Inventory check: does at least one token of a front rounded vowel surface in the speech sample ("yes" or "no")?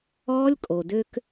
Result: yes